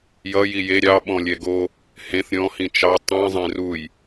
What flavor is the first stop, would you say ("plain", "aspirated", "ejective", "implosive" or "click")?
implosive